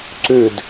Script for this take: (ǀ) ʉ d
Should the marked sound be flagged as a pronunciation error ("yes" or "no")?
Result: no